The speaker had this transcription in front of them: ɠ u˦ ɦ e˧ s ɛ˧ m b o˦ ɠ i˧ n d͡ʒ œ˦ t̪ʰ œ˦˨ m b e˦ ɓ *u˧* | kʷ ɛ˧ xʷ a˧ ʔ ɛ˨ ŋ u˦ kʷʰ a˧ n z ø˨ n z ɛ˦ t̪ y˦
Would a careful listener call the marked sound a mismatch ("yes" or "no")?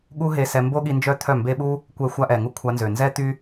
yes